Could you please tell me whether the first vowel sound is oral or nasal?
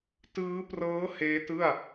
oral